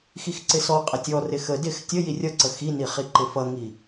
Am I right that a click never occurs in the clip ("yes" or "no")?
no